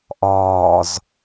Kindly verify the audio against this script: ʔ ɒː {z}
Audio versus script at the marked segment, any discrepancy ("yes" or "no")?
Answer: no